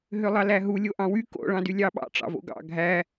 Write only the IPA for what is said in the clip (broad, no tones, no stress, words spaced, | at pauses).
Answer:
ɦølˠɑlæɦu lʲoʔɑ̃wy ko̰ ɭɑ̃dylʲɑɓɑ̰ ʈ͡ʂɑ̰vo̰ɡɑ̰ ɡʱæ